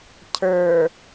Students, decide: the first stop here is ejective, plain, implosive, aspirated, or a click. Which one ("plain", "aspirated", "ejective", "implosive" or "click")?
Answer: aspirated